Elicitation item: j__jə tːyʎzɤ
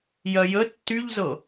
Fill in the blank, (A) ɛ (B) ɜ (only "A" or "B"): B